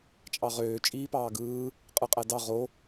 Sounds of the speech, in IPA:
t͡ʃʼ ɑ ʁ øː t͡ʃʼ iː p ɑː ɡ ɯː | qʼ ɯ qʼ æ d ɑ ʁ o

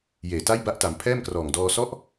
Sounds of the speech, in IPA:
j eː˨˩ t a˥˩ j b a˦˥ ʔ t a˩˦ m pʰ ɛː˥˩ m k r ɔː˨˩ ŋ d ɔː˧ s ɔ˦˥ ʔ

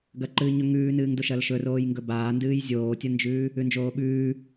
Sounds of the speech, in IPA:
ɡ ɐ ǃ ɨː ɲ ɵ ŋ ʉː n ɨː ŋ d o ʃ ɐ l ʃ ɵ r oː j ŋ ɡ ɵ b aː n d ɨː j zʲ oː tʲ ɐ n d͡ʒ ʉː | ʉ n d͡ʒ oː ɓ ʉː

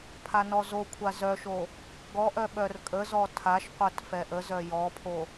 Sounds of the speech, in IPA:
pʰ a n ɔ z o kʷʰ a z œ ʃ o | ɡ ɔ ʔ œ ɓ œ r kʼ ə z ɔ tʰ a ʃ qʷ œ t f ɛ ʔ ə z œ j ɔ pʰ o

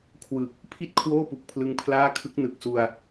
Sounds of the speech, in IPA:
kʰ w ɯ˨˩ k̚ | pʰ i˥˩ t̚ kʰ w oː˥˩ p u˨˩ k̚ pʰ l ɯ˦˥ ŋ pʰ l aː˥˩ kʰ ɯ˦˥ k̚ n ɯ˨˩ k̚ s u˧ a̯

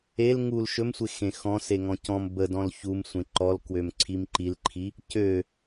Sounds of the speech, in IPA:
e l ŋ u l ʃ ɵ m sʷ e x ẽ x ɔ̃ s e ŋ ɔ̃ c ɔ̃ m b ə d ɔ̃ l ç u m sʷ ẽ ǃ ɔ l k w ø m ǀʰ i m ǃ i l ǃʰ i | c ø

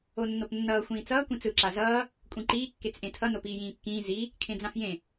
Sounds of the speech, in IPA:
o nː o p nː ʌː xʷ ĩː t͡s ʌː kʷ ĩ t͡s ɯ ǁ a z ʌː | kʷʼ ĩ ǃ iː kː e t͡s ʔ ẽ tʰ ʌ n o p iː j ĩː kː ĩː z i | kʰ ẽ d͡z ã f j ẽ

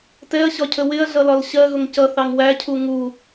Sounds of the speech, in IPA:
t ɛ ɐ̯ ɕ ɒ cʰ ə w ɪ ɐ̯ ɮ ʌ l ɒ l ɕ ɜ ɣ ʊ ŋ c ʌ θ ɑ ŋ w æ cʰ u ŋ u

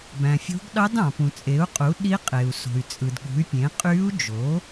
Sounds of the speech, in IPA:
b æ̃˩ fʲ o̤˧˥ ɡ ɗ ɑ˧˥ d ɑ̃˩ p ũ˩ t͡sʼ e˩˥ u̯ qʼ u˩˥ ɗ i˧˥ qʼ e˩ u̯ s o̤˩ y̯ t͡sʼ ɯ˩ d ɠ ṳ˩˥ y̯ pʲ ẽ˩˥ qʼ y˧˥ u̯ d͡ʒ o˩˥

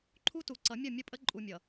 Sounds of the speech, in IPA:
ǃʰ u˦ t u˨ ǀ ʌ˨˦ mʲ ʌ˦˨ mʲ ə˦ pʼ ə˦ ǃʼ u˨ mʲ ʌ˨

